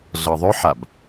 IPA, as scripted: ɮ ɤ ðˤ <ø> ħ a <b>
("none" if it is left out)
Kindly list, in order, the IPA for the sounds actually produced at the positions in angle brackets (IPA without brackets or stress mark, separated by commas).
ø, b